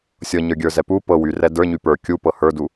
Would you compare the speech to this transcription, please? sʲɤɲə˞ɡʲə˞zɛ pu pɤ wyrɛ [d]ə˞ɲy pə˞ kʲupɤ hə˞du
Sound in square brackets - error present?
no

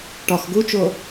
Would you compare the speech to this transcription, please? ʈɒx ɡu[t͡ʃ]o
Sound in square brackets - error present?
no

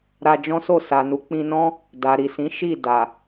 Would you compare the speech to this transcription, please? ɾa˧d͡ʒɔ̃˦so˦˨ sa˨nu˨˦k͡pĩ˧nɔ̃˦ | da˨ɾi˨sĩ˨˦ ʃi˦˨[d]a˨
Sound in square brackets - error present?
no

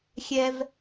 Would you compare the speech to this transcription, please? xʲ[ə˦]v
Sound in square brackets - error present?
yes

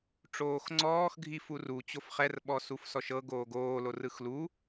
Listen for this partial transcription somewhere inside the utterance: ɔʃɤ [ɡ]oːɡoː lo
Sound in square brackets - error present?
no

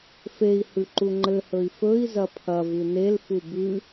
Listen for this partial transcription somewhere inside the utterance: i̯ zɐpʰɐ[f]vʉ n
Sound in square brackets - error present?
yes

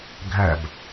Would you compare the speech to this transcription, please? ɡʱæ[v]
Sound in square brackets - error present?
yes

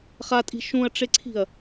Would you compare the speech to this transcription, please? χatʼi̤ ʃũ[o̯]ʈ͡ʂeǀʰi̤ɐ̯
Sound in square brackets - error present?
yes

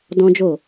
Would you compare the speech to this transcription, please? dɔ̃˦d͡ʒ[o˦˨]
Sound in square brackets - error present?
no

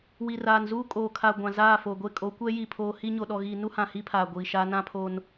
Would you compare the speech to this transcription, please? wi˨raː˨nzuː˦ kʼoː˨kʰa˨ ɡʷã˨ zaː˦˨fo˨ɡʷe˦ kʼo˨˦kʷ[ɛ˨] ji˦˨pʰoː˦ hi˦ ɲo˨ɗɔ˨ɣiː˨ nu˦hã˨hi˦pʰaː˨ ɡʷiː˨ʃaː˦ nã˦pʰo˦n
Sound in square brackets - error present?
yes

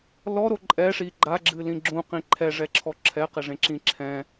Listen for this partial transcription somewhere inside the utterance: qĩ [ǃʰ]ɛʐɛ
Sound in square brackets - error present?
no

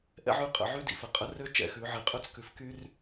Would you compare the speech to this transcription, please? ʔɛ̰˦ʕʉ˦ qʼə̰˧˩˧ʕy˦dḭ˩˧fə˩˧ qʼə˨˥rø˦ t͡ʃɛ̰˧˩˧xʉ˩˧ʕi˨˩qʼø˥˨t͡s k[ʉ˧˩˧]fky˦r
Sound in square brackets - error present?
yes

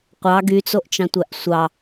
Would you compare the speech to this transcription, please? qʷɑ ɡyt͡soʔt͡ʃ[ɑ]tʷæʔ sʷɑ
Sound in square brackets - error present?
yes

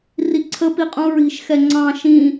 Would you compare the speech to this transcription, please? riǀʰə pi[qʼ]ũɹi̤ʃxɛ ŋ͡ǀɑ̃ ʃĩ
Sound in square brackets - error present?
no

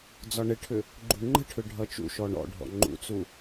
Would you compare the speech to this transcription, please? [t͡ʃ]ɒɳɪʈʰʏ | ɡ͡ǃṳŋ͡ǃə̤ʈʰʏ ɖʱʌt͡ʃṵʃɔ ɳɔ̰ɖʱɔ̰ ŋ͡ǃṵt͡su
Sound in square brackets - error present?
yes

